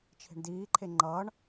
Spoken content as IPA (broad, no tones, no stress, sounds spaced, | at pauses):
t͡ʃʰ e̤ ɳ d iː ǃʰ e ŋ͡ǃ ʌː ɳ